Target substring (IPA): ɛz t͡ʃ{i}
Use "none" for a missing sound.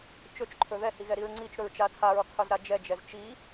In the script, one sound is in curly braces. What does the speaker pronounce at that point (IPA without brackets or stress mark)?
i